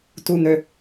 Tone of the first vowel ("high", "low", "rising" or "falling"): low